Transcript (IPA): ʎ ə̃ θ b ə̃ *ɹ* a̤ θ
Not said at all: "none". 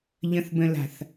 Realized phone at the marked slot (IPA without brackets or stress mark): l